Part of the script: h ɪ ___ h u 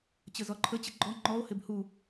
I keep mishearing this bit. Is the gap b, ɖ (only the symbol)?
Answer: b